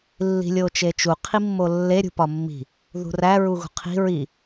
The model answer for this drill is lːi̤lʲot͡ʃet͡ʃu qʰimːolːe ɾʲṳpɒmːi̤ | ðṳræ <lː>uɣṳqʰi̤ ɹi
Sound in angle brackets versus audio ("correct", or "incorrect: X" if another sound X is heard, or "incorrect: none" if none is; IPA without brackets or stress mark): incorrect: ɹ